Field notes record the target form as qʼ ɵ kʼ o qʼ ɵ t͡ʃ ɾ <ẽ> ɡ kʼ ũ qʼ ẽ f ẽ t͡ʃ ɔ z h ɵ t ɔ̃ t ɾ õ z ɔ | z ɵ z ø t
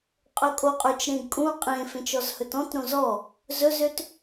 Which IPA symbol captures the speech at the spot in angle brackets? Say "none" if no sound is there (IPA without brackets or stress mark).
ẽ